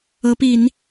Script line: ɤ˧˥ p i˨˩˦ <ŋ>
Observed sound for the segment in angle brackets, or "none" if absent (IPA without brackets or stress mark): n